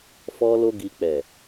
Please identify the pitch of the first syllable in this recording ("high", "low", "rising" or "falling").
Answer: high